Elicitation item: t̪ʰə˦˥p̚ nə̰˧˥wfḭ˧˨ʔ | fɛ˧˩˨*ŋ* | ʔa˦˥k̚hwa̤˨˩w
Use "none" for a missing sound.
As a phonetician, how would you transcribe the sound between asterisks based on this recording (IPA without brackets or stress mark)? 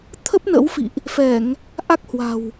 ŋ